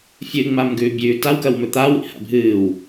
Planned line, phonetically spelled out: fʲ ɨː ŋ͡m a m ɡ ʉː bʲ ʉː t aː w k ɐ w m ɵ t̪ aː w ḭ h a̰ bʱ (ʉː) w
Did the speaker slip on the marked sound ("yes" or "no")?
yes